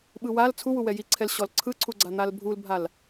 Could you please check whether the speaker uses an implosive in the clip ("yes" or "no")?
yes